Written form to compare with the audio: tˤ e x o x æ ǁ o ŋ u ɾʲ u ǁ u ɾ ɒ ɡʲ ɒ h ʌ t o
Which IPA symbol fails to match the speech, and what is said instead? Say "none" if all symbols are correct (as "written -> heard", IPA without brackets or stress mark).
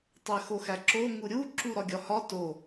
ʌ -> ɒ